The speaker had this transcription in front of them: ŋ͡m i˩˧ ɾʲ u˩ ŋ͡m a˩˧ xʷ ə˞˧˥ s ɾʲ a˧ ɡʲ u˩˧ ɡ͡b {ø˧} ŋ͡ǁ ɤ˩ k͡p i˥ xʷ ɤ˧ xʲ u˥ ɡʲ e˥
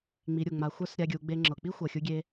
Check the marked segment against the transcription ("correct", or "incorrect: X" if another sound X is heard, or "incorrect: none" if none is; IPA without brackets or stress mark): incorrect: e˧